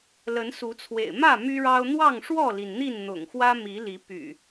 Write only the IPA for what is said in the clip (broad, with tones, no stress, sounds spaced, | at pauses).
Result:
l ə˨˦ n s u˨˦ t͡sʰ w ḛ˨˩ ɪ̯ m ä˥˨ m y˦ ɻ ɑ˦ ʊ̯ n̪ w ɑ˥˨ ŋ ʂ w ɔ˥˨ l i˩ n n̪ i˥˨ n n̪ ʊ̰˨˩ ŋ x w ä˦ m i˨˦ l i˨˦ p y̰˨˩